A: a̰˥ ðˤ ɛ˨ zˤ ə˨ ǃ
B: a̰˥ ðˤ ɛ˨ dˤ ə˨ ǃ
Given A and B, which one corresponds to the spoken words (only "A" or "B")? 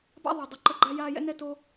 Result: B